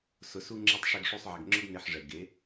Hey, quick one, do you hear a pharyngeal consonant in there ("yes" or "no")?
yes